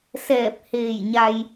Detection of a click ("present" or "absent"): absent